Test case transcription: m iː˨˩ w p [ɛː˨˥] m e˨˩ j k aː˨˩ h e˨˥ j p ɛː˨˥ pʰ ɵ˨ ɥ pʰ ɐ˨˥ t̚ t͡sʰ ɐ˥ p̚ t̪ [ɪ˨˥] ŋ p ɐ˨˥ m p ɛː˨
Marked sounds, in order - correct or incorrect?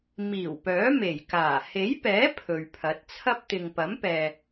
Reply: incorrect: œː˨˥, incorrect: ɪ˨

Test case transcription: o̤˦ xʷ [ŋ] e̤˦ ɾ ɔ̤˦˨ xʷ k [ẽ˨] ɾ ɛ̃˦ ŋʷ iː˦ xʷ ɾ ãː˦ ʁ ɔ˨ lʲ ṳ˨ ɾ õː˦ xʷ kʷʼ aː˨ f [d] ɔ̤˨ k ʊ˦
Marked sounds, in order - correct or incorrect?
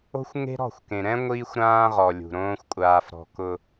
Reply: correct, correct, incorrect: ɾ

